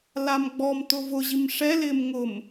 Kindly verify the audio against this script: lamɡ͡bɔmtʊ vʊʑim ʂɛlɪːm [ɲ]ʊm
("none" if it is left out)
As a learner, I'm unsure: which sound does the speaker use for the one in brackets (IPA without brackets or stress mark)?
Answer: ŋ